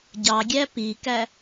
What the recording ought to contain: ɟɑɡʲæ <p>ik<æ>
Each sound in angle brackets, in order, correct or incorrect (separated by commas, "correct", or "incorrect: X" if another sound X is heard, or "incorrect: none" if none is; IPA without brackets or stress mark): correct, correct